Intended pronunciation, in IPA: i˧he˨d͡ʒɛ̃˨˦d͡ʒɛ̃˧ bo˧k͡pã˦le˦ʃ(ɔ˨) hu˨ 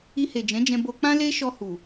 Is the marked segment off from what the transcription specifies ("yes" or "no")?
yes